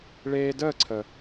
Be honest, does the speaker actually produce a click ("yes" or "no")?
yes